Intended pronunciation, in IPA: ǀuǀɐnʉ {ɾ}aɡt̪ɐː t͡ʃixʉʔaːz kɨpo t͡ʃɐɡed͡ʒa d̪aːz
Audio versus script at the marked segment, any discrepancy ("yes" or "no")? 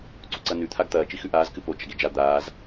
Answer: yes